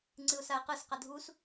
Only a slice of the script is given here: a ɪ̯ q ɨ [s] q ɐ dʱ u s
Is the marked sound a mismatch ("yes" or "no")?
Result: no